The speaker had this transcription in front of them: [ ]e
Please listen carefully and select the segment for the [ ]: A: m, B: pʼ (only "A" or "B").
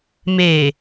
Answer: A